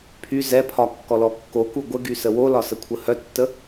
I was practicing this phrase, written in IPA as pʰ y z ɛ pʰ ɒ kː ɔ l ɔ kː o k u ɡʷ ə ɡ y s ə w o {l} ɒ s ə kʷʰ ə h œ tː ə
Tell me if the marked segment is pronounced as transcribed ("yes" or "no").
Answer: yes